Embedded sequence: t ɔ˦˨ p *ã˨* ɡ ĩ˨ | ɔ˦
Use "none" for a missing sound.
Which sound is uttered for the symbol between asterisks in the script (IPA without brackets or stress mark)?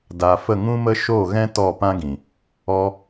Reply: ã˦